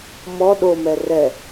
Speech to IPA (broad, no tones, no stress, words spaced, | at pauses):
mɔ ɗomɛ rɛ